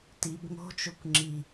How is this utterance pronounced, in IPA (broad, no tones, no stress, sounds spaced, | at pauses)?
t i b ŋ o̤ t͡ʃ o kʷ ŋ͡ǁ i